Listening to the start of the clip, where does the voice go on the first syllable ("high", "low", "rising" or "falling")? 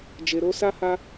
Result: low